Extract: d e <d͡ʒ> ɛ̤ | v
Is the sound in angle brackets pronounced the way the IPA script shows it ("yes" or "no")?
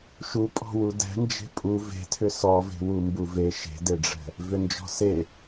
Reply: no